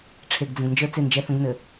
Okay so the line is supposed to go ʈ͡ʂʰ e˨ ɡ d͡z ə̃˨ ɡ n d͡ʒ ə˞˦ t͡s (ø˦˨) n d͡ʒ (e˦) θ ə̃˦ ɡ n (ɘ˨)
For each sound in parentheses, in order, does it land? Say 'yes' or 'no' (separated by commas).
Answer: no, no, yes